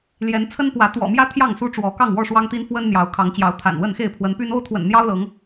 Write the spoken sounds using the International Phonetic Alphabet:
l j ɛ˨˦ n t͡sʰ ə˦ n p w ä˨˦ t̪ w ɔ̰˨˩ m j ä˦ t̪ʰ j ɑ˥˨ ŋ s u˦ ʈ͡ʂ w ɔ˨˦ k ɑ˥˨ ŋ w ɔ˥˨ ʂ w ɑ˦ ŋ t̪ i˦ n f w ə˦ n n̪ j ɑ˨˦ ʊ̯ kʰ ɑ˨˦ ŋ t͡ɕ j ɑ˨˦ ʊ̯ t̪ʰ a̰˨˩ n w ə˥˨ n x e˥˨ ɪ̯ pʰ w ə˨˦ n p y˦ n o˦ ʊ̯ t̪ʰ w ə̰˨˩ n n̪ j ɑ˦ ʊ̯ l ɤ˨˦ ŋ

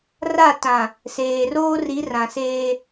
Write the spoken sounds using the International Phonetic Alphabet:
r a˦˨ t ã˨ | s eː˨ r oː˦ r i˨˦ r ã˨ s eː˦

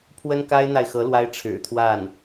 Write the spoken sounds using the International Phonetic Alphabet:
pʰ w ə˥ n k a˥ ɪ̯ n̪ a˨ ɪ̯ x ɤ˧˥ l w a˥ ɪ̯ ʈ͡ʂʰ ɻ̩˨˩ t̪ʰ w a˥˩ n

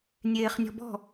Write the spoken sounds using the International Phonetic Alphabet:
nʲ eː χ nʲ ɔ̤ b ɔ̤

